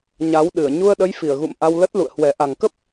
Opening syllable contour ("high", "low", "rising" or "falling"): rising